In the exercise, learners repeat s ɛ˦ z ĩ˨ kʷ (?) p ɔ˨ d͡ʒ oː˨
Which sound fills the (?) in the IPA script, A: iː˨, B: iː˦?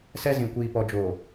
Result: A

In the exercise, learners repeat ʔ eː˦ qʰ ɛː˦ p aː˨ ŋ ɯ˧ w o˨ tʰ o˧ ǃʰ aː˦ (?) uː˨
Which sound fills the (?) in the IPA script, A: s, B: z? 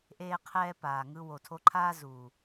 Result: B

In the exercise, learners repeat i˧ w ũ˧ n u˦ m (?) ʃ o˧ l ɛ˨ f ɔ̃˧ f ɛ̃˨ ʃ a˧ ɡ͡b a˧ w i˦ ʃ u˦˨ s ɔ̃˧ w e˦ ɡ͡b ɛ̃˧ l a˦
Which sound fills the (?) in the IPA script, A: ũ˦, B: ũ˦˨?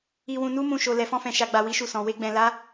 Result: B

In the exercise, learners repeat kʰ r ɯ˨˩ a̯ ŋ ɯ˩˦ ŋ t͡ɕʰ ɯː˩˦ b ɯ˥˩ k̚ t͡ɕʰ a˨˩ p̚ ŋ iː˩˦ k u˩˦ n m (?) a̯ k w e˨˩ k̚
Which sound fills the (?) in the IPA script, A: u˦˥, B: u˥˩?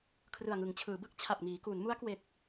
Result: A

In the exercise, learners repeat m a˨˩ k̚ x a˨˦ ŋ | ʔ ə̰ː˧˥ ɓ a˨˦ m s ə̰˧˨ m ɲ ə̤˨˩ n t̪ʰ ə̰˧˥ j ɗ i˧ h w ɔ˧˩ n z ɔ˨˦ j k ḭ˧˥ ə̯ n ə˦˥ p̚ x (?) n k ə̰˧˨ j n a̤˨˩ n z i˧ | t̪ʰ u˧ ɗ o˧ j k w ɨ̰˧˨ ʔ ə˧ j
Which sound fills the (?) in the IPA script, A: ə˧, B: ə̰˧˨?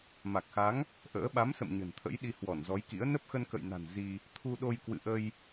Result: A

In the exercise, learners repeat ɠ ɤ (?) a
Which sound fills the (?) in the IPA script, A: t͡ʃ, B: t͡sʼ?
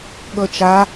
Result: A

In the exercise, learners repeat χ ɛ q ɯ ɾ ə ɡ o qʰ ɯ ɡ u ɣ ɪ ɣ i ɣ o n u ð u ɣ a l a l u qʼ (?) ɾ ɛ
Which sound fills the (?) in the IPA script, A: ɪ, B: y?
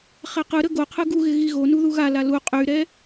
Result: B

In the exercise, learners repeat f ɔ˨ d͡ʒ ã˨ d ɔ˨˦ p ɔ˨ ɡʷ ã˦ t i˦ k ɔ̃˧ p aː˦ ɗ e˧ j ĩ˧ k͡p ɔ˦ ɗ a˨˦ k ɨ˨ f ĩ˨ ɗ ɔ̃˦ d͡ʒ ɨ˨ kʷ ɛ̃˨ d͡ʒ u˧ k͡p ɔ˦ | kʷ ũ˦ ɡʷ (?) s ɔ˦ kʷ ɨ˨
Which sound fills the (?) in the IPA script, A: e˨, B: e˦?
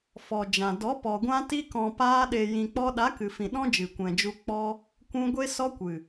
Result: B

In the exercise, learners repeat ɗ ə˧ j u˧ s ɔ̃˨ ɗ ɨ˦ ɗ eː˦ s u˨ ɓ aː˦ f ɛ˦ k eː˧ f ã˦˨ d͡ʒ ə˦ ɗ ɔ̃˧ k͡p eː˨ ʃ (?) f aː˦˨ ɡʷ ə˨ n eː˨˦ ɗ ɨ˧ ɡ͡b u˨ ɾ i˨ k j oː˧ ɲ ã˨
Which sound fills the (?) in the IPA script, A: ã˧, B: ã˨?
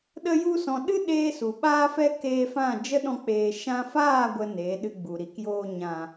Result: A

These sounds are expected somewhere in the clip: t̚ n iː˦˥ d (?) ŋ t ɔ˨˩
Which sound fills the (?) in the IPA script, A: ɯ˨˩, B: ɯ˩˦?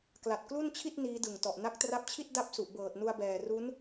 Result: A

